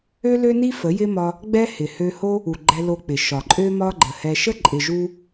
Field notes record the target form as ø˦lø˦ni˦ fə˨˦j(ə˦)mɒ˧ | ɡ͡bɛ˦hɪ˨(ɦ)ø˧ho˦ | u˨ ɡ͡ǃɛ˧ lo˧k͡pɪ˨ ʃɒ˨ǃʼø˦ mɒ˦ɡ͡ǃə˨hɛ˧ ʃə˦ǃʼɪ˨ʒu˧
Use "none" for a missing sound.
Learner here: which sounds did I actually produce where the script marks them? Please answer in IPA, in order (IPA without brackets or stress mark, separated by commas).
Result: ɪ˦, h